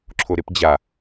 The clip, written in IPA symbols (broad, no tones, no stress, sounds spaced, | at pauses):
ǁʰ o ɾ e p d͡ʑ a